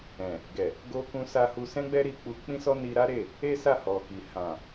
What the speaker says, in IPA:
ɛ̃˨ | ɡ ɛ˨ | ɡ o˧ k ũ˧ s a˧ h u˧ s ɛ̃˦ ɡ͡b ɛ˦ ɾ i˧ k͡p u˧ k͡p ĩ˦ s ɔ˦ n i˧ ɾ a˦ ɾ e˦˨ | e˦ s a˦˨ h ɔ˨ k i˨ h ã˨

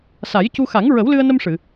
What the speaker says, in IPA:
s a˨˩˦ j c u˧ x a˨˩˦ ŋ ɹ ə˨˩˦ w l ɨ˧ ə̯ n ə˧ m ʂ ɨ˨˩˨

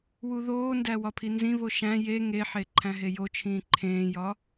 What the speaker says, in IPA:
w u ð oː n d æ w ɒ pʰ i n z ĩ β o ʃ æ̃ j e ŋ e ħ e ǃʰ æ̃ ɦ e j o t͡ʃʰ ĩː ǃʰ ẽː j ɒ

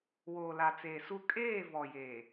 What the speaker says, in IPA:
w oː˨ l a˨ t͡s eː˨ s u˦ kʼ eː˦˨ v ɔ˨ j eː˨

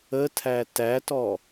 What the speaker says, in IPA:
ə tʰ æ t æ t ɔ

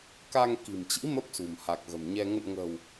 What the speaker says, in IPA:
k a˧ ŋ k i̤˨˩ m t͡ɕ ḭ˧˥ m ə˦˥ p̚ s ṳ˨˩ m h a˨˩ k̚ ɣ ə̤˨˩ m ɲ ɛ˧ ŋ ə̰˧˨ n ŋ ə̤ː˨˩ w

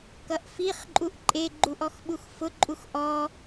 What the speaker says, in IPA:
k ʌ ʔ f i χ ǃʼ u ʔ ǃʼ e ɡ͡ǃ u ʔ ɔ x ɓ u x f ʊ ǃʼ u x ʔ ɔ

